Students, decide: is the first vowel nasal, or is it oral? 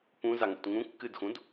nasal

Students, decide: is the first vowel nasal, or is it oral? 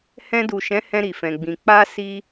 nasal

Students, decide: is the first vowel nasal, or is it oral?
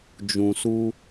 nasal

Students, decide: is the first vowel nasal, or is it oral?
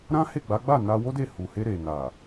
nasal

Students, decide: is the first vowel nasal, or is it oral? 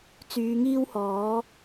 oral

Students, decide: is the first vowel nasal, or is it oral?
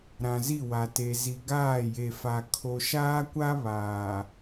nasal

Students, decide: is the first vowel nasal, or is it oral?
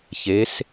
oral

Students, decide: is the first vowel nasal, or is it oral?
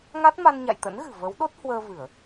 oral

